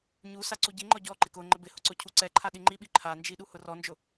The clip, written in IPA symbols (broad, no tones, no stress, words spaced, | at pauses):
ɲusa ǀuɟiŋ͡ǃɔ ɟɔǃɪk ʊ ŋ͡ǃɪbɪhʊ ǀʊcʰuǀɛǃʰa ɗiŋ͡ǃiɓi ǃʰand͡ʒi ɗuhʊrɔnd͡ʒʊ